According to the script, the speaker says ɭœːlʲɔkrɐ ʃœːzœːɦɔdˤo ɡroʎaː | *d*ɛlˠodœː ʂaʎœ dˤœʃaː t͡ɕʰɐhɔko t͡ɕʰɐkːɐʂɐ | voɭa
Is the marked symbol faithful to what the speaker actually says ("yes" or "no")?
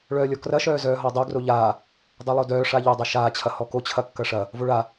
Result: no